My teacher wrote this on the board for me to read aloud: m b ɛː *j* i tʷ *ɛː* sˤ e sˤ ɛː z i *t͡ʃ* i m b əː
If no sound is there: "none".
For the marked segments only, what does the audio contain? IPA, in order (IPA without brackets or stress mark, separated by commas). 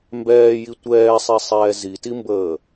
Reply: j, ɛː, t